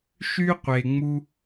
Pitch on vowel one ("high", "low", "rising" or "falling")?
high